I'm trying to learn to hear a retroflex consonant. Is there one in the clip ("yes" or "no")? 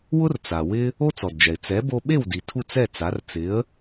no